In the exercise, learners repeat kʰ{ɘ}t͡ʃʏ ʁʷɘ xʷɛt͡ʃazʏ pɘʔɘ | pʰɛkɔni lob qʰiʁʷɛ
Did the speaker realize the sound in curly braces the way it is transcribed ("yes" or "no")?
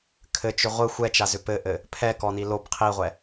yes